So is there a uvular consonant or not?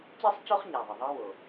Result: yes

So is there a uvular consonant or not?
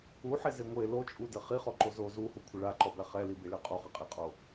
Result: yes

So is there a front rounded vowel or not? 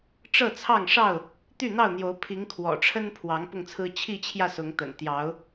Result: yes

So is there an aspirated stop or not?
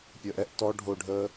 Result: no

